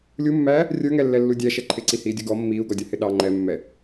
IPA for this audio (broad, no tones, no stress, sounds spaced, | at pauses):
lʲ u mː æː | rʲ ə˞ ŋ ɛ lː ɛ lː u dʲ æ ʃ ɛ ǃʰ ɪ ǀ i h iː dʲ ʊ ɡ ɔ mː iː u̯ ɡ ɔ dʲ ʌ h ɪ ɗ ɑ ŋ͡ǃ ɛ mː ɛ